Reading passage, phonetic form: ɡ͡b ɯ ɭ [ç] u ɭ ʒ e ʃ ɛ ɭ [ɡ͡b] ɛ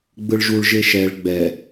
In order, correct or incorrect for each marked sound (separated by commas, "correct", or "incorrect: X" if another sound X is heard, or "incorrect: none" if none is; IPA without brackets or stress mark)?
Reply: incorrect: ʒ, correct